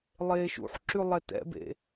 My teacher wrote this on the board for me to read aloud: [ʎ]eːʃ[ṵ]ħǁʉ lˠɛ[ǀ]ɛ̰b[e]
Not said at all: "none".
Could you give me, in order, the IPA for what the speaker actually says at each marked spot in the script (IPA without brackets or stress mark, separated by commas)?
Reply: lˠ, ṵ, t, ḛ